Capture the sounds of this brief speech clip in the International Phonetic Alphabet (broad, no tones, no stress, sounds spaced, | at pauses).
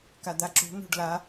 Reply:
k a d̪ a ǁ ṳ n ṳ ɖ l a